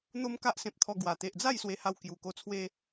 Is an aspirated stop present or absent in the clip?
present